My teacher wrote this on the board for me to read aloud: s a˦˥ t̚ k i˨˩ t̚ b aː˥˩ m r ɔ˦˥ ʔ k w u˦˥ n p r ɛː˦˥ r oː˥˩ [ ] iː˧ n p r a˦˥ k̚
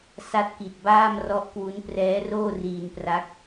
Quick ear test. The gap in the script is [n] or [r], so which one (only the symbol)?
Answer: r